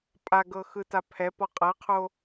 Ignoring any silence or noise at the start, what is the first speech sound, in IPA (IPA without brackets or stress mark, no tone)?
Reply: pʼ